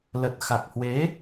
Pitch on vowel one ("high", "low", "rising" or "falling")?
low